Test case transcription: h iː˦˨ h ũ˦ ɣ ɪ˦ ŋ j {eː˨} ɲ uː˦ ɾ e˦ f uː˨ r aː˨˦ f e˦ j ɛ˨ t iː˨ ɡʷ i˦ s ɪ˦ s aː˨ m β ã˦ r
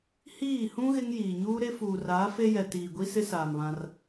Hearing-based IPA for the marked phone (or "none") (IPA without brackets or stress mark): iː˨